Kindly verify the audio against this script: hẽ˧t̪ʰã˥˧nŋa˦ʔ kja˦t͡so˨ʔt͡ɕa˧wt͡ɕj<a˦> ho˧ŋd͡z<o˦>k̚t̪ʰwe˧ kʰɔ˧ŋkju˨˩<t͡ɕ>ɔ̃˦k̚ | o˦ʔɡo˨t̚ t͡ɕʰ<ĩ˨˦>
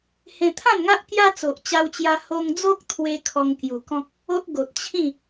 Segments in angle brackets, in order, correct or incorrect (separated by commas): incorrect, correct, incorrect, incorrect